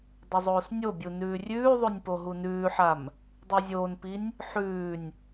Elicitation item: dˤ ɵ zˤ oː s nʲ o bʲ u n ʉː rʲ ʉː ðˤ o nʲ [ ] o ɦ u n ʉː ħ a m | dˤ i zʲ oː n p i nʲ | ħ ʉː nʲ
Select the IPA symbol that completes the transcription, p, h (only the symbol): p